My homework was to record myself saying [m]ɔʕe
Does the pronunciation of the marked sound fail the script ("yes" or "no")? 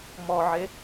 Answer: no